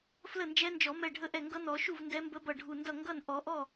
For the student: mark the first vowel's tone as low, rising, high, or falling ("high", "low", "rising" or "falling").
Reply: falling